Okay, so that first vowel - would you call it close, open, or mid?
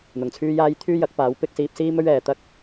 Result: close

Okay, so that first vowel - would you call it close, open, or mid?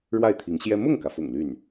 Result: open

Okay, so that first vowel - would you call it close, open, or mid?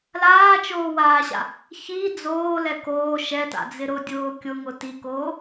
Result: open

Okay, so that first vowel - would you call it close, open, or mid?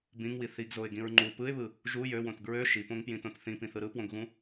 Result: close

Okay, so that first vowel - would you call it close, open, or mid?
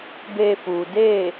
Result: mid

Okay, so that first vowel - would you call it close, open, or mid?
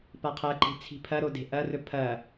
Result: open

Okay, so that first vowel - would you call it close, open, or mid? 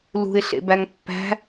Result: close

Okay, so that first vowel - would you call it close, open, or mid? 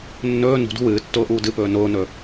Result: mid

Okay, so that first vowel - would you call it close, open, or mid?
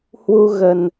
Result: close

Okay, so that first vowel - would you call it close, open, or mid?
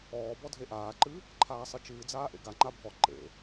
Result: mid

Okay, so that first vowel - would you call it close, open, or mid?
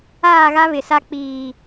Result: open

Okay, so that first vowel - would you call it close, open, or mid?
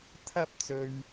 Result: open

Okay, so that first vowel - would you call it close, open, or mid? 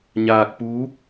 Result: open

